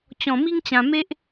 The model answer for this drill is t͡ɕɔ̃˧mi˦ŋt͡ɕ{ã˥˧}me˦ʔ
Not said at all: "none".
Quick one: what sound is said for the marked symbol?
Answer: ã˧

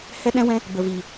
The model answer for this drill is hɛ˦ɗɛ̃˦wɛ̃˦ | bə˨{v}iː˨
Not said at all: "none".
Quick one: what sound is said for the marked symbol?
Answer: v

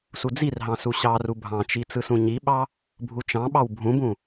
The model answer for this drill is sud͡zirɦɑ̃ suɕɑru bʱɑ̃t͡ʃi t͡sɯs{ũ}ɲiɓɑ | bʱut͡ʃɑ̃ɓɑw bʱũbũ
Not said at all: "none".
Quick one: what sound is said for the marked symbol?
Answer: ũ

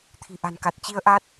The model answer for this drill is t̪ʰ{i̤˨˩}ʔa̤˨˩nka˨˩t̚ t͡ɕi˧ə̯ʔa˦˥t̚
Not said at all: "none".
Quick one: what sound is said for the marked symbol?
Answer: i̤˨˩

